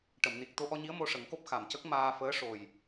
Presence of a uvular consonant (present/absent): absent